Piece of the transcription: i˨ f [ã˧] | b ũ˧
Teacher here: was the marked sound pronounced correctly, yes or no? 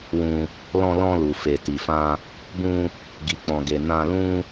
yes